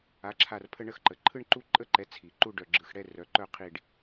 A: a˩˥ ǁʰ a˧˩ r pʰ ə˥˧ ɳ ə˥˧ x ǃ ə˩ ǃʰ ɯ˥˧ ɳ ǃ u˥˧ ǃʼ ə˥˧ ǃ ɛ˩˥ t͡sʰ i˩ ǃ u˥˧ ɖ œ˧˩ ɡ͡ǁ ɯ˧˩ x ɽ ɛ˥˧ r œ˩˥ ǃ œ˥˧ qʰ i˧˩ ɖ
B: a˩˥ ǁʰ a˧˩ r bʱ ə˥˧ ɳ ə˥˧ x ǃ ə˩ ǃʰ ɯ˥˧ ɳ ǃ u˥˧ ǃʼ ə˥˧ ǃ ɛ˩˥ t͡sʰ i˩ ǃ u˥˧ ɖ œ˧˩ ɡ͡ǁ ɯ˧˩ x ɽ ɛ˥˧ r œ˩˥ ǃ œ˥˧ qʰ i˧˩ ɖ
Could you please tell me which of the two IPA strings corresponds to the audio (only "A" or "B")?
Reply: A